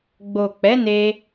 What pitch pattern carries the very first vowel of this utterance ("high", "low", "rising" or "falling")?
low